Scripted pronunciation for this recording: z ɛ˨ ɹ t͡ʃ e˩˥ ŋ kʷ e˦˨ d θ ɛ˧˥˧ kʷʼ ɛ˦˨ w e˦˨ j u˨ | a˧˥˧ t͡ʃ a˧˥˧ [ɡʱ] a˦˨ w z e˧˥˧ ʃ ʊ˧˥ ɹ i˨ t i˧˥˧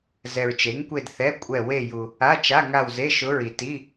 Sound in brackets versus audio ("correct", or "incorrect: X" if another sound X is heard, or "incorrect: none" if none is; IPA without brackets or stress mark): incorrect: ŋ